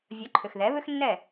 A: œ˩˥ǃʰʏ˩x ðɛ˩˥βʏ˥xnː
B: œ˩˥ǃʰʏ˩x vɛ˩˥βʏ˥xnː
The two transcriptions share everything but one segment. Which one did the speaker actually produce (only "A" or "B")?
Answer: A